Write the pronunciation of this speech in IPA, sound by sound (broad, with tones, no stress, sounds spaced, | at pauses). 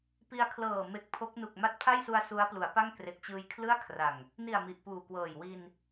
p i˧ a̯ kʰ l ɤː˨˩ m e˨˩ k̚ pʰ o˦˥ k̚ n u˨˩ k̚ m a˦˥ t̚ pʰ a˥˩ j s u˧ a̯ s u˦˥ a̯ p l u˩˦ a̯ p a˥˩ ŋ k r e˨˩ k̚ t͡ɕ ɯː˧ j kʰ l ɯ˥˩ a̯ kʰ r a˨˩ ŋ | n i˨˩ a̯ m i˨˩ ʔ p uː˨˩ k w ɤː˨˩ j w i˧ n